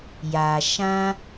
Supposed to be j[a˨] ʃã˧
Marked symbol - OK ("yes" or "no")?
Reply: yes